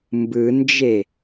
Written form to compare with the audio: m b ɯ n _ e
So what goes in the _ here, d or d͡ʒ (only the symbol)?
d͡ʒ